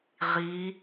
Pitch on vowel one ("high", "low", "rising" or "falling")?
rising